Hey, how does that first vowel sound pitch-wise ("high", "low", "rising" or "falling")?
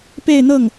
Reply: falling